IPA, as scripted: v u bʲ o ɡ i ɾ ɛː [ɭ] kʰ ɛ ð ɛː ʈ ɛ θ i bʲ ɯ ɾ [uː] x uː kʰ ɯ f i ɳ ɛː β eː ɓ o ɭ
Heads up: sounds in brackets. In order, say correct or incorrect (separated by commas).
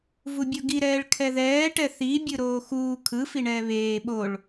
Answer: correct, incorrect